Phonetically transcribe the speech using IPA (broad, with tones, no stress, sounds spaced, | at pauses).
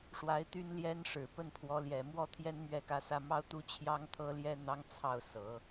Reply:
ʂ w a˧˥ ɪ̯ t̪ y˥ n l j ɛ˥ n ʂ ɻ̩˨˩ p ə˥˩ n pʰ w ɔ˧˥ l j ɛ˨˩ m w ɔ˥ t̪ʰ j ɛ˥ n m ɥ ɛ˥˩ k ä˥ s ä˥ m ɑ˥ ʊ̯ t̪ u˥ t͡ɕʰ j ɑ˥ ŋ t̪ʰ ɤ˥ l j ɛ˥ n̪ ɑ˥ ŋ t͡sʰ ɑ˥˩ ʊ̯ s ɤ˨˩˦